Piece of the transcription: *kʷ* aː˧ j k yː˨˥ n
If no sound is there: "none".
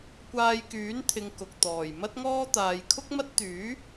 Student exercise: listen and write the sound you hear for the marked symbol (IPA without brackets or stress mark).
kʷ